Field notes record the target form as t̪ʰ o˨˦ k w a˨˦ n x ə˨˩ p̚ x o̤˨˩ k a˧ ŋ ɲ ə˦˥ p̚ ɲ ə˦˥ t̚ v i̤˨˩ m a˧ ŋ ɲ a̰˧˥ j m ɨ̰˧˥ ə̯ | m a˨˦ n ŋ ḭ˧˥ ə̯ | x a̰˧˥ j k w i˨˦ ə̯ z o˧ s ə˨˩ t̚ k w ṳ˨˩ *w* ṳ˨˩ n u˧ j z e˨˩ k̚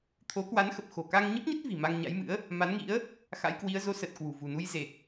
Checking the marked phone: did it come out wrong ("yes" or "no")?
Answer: yes